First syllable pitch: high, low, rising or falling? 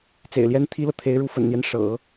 low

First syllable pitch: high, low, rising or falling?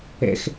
high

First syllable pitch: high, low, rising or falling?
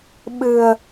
low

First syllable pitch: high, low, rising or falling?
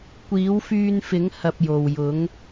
rising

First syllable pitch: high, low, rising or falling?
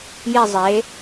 falling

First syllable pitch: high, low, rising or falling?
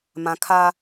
low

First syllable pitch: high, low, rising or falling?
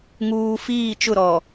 low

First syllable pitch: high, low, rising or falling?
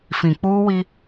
low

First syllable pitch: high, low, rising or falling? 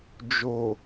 low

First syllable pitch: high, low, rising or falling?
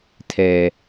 low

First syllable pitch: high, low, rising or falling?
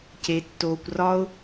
low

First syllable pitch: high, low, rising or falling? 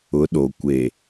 rising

